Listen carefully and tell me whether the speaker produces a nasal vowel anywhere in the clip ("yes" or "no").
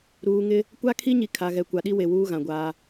yes